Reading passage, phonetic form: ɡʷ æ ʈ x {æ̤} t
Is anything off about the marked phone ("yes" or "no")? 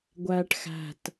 no